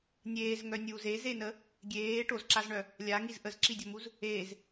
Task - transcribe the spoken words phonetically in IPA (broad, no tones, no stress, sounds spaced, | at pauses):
nʲ eː z ŋ œ nʲ uː z e z e n ə | ɡʲ eː ʈ o z ǁ a z ɳ œ | lʲ a ŋ i z ʔ ə z ǁ i dʲ ɔ m u z | eː z